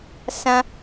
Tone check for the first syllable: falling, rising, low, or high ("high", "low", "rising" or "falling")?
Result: high